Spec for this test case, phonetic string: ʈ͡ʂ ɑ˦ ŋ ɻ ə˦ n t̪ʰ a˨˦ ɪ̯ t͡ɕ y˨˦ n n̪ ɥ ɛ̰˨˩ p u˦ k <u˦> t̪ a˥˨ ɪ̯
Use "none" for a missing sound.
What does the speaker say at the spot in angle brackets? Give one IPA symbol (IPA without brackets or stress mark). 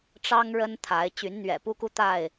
u˦